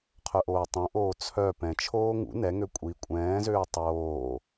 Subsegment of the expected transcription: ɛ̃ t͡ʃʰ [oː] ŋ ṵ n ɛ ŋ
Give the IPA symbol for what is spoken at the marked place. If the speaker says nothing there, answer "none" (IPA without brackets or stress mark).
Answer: oː